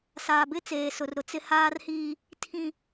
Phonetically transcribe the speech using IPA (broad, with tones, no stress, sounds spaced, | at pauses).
s aː˨ b ɪ˦ t͡s eː˨ s ʊ˨ r ɾ ʊ˨ t͡s ɪ˦ h aː˦ r h iː˦ | tʰ ĩ˦